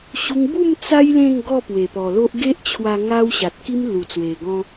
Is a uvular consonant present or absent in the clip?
absent